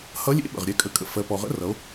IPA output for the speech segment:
hʌ˧˥ lʲḛ˧˥ɓə̰˩ʁɾʲɛ˧ kʼə˩˧kʼə̰˩ fɜ˩˧pɔ˩ʁə̰˧˥rʌ˩˧o̯

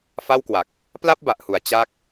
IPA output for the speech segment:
fa˥˩wkwa˨˩k̚ | pla˥˩p̚ba˨˩ʔhu˩˦a̯ t͡ɕa˥˩k̚

